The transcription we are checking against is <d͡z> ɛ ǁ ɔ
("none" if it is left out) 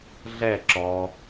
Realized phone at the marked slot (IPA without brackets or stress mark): ɮ